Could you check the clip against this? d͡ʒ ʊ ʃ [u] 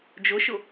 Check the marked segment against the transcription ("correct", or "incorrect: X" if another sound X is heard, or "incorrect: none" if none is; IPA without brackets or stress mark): incorrect: ʊ